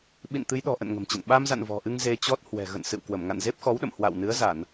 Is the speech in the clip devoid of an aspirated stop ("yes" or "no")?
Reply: yes